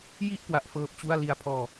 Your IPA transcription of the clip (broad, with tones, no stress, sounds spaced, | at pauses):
j i˥˩ ʔ k w a˦˥ ʔ f ɤː˦˥ p̚ t͡ɕ u˥˩ a̯ l i˧ a̯ pʰ ɔː˧